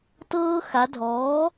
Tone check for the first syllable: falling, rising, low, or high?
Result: high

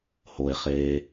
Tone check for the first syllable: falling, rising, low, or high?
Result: low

